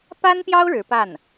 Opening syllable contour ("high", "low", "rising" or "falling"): high